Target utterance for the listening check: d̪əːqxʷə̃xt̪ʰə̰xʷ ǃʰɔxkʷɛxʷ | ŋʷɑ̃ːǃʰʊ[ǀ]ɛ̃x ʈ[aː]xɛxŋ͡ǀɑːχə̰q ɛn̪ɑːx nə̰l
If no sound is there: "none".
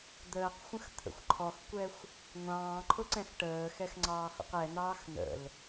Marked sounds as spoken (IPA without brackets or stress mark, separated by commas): ǀ, əː